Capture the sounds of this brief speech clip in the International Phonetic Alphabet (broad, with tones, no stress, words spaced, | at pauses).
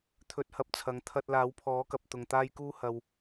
t̪ʰɵ˧t̚hɐ˧p̚t͡sʰɐ˨˧ŋ t̪ʰɐ˧t̚ laː˨˥wpʰɔː˨˥kɐ˨p̚ t̪ʊ˨ŋt̪aː˥jkuː˥ hɐ˨w